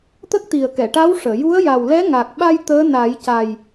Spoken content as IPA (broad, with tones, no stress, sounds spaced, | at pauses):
t̪ ə˦˥ k̚ t̪ i˨˩ ə̯ k ɛ˨˩˨ ʈ a˧˥ w ʂ əː˨˩˨ j u˧˥ ə̯ j a˨˩ w l ɛ˧˥ ŋ a˨˩ k̚ ɓ a˧ j t̪ əː˧˥ n a˨˩˦ j c a˨˩ j